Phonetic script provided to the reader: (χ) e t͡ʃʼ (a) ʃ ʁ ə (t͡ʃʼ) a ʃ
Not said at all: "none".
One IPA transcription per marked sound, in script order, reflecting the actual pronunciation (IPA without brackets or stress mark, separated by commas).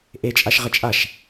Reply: ʔ, a, t͡ʃʼ